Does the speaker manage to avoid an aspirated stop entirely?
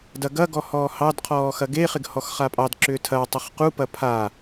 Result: no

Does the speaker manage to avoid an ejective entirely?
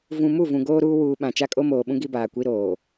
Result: no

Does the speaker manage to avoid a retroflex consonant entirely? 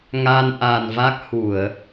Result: yes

